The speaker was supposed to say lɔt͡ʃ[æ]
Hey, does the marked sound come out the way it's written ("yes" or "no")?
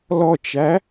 yes